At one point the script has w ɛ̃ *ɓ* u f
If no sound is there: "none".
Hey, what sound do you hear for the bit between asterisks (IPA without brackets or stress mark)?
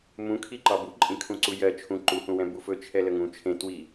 b